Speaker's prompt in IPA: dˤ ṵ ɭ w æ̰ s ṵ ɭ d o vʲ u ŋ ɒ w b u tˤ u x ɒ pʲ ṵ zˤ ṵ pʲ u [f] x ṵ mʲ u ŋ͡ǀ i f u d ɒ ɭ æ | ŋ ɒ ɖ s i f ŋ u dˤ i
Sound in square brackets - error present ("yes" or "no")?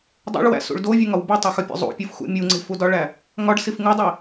no